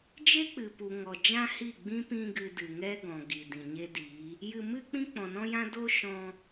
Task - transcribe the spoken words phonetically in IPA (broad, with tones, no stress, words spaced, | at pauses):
d͡ʒe˦k͡pɨ˨ pu˨ŋɔ˨ d͡ʒã˦hi˦˨ɡ͡bĩ˦ pĩ˧ɡɨ˨ dɨ˨ŋɛ˦ɡɔ̃˨ ɡi˨dĩ˨ɲe˦di˨˦ | jɨ˧mɨ˦k͡pĩ˦ k͡pɔ̃˨nɔ̃˦jã˦ do˦ ʃɔ̃˧